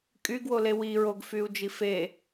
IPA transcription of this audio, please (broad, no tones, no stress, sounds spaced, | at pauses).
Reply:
kʼ y ɡ w o l e w i ɹ o ɡ f y u̯ d͡ʒ i f e